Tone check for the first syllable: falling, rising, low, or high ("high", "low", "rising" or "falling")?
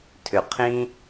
low